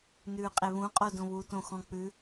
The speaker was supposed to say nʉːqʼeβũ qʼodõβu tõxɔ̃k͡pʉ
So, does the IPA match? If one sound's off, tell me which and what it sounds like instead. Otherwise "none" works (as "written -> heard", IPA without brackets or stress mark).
none